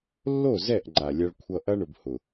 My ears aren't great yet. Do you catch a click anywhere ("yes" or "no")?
yes